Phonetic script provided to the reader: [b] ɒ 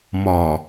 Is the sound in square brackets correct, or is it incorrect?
incorrect